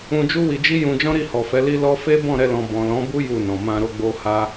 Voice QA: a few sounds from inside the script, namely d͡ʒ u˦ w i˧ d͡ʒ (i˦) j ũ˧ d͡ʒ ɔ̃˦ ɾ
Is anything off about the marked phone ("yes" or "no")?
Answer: no